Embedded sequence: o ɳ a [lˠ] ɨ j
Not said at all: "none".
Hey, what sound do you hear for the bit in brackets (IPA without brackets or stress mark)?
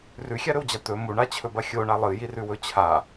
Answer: lˠ